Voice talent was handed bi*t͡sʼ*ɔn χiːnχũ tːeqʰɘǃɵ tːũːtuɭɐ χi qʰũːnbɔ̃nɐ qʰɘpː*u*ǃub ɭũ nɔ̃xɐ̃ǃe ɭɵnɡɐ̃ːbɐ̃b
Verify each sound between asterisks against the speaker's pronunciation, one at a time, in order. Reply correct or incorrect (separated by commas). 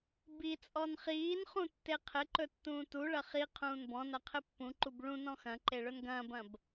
correct, incorrect